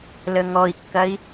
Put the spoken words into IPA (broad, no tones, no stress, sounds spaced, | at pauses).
l ə ŋ ɔ i̯ kː ɐ i̯